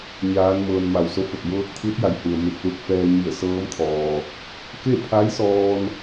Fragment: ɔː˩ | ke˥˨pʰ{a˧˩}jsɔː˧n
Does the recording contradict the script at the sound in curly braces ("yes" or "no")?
yes